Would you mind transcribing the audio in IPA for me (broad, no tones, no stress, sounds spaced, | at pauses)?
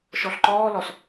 ʃ ɔ ɬ ǃ ɔː l ɔ s